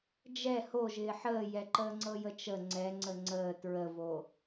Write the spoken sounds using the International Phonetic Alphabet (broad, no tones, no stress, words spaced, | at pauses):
d͡ʒɛ hoʒɪː ħəːjɛǃəːŋ͡ǀɤ jət͡ʃə ŋ͡ǀɛ ŋ͡ǀəŋ͡ǀəː tɹəvo